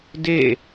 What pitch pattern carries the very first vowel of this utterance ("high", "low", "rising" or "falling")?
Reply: falling